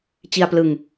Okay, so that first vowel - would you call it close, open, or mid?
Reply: close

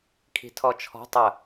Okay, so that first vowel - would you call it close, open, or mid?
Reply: close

